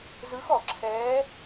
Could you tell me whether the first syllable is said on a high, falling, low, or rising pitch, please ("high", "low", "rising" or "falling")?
rising